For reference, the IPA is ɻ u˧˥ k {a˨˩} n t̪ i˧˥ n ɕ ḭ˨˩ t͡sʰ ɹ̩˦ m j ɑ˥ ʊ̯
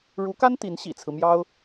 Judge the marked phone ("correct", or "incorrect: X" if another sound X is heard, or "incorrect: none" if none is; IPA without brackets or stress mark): incorrect: a˥